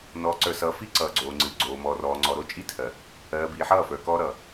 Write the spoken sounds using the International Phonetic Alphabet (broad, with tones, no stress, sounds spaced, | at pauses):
n ɔː˨ ǀ ə˞˨ s ʌː˨˦ f i˦ ǀ ʌː˨ ɡ͡ǀ oː˨ ŋ͡ǀ ɨː˨ ɡ͡ǀ oː˨ m ɔː˨ r ɔː˨ ŋ͡ǀ ɔ˨ ɾ o˦˨ t͡ʃʼ i˦ tʰ ɜ˨ | ɜː˨ b iː˨ ħ ʌː˦˨ f ə˞˨ k ɔː˦ ɾ ʌ˨